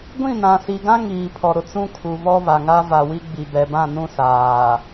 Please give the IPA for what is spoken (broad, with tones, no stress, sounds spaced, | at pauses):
ɡʷ ĩ˦˨ n ã˨ s i˨ ɡ ã˦ ŋ iː˨ pʰ ɔ˨ ɾ ʊ˨ t͡s ũ˦ kʰ u˨ β ɔ˦ β a˨ ŋ a˦ v a˨ w i˦ ɡ͡b i˨ b ɛ˨ b ã˦˨ n ũ˦ s aː˨